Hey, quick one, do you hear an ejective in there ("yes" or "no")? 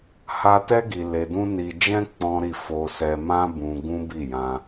no